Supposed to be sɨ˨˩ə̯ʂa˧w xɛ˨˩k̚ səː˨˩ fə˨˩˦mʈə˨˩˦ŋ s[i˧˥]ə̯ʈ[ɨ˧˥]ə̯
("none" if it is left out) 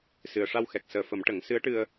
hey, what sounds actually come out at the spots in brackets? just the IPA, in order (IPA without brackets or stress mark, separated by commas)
ɨ˧˥, ɨ˧